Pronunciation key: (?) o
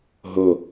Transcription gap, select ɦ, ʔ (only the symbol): ɦ